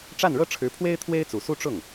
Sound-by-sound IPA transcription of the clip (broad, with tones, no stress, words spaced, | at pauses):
ʈ͡ʂa˥˩nɻɤ˥ʈ͡ʂʰɻ̩˧˥pʰwe˥ɪ̯ t̪ʰwe˥ɪ̯t͡su˨˩ su˥˧ʈ͡ʂʊ˥˩ŋ